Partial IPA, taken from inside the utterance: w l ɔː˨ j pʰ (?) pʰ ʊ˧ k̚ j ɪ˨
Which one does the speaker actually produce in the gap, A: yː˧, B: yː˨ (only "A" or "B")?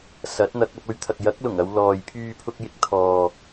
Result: A